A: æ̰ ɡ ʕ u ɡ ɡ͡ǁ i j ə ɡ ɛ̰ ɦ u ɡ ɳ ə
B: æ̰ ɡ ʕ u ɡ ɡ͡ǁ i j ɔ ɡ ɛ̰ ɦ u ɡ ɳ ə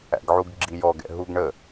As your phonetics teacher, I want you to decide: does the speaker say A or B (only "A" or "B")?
B